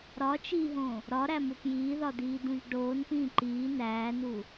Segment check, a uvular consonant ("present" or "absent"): absent